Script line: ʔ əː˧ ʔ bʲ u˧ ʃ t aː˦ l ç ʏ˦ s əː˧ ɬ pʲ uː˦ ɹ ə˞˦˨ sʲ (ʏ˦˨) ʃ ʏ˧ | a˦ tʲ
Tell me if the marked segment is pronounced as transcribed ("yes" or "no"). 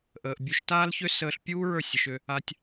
no